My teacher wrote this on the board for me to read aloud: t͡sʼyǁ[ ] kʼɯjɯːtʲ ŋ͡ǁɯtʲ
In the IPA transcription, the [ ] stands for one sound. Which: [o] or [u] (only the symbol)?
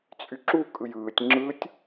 u